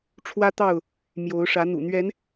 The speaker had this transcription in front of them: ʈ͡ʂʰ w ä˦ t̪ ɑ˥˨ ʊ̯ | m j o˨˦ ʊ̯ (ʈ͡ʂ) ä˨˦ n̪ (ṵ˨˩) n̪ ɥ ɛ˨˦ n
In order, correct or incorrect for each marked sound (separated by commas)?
incorrect, correct